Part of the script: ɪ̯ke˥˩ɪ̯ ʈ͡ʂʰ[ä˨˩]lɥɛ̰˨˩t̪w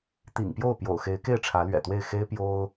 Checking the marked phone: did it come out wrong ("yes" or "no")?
yes